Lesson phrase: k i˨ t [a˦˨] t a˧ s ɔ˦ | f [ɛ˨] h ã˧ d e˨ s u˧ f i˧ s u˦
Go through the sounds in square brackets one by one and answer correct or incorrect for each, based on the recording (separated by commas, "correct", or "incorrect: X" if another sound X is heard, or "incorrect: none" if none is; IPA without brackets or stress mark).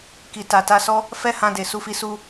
incorrect: a˨, incorrect: ɛ˦